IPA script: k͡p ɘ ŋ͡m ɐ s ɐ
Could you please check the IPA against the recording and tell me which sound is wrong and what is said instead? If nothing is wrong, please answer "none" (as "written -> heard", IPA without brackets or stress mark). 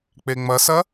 ɘ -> e